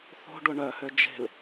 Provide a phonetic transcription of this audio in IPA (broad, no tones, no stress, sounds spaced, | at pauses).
θ o̤ ɖ ʊ ɳ œ h ø d͡ʒ e̤ l